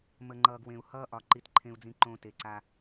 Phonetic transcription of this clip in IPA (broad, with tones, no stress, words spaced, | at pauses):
mə˨ŋ͡ǃʌː˨ɡ wẽ˨u̯ hʌː˦ʔɒ˨ ǃi˦tǃʰẽ˦u̯d͡zĩ˦ǃõː˦ te˨ǀa˦